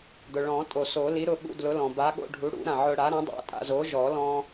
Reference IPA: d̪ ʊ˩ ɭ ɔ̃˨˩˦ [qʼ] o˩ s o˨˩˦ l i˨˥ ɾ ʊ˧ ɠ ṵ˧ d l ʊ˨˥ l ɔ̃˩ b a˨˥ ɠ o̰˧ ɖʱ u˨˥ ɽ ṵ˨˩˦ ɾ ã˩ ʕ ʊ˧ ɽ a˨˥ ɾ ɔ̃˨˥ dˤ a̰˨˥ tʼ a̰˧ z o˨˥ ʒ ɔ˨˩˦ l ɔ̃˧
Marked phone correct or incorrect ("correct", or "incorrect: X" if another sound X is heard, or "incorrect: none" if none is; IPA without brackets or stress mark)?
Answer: incorrect: tʼ